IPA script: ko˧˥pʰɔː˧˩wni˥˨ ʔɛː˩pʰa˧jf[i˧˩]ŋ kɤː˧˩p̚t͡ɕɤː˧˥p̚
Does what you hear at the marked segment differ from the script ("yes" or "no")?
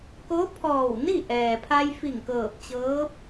no